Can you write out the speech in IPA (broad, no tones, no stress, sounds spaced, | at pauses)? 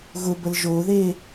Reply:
ɣ ʊ b ə l ʒ o ð e